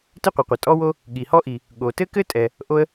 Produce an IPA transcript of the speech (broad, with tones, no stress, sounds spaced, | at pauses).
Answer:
t ɘ˥ qʷ ɘ˩ qʷ ɐ˩ tʼ ɔ˥ w o˥ | ɠ i˩ h ɔ˥ ʔ i˩ | ɠ o˩ t ɘ˥ k ɘ˥ tʼ ɛ˩ | ʔ o˥ ə̯